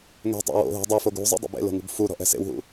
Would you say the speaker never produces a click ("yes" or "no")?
yes